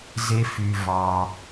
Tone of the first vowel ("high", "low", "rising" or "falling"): high